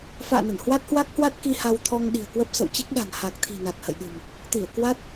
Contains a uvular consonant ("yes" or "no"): no